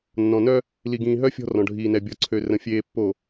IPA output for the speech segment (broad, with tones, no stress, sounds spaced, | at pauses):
nː ɔ̃˨ n œ˦ | l i˨ ɡ ĩː˨ ɦ œ˦ fʲ ɔ̤˦ r ɔ̃˨ ɖʱ iː˨ n ɛ˨ bʲ ɔ˨ ǀʰ ø˨ r ə̃˨ fʲ eː˨ pː o˨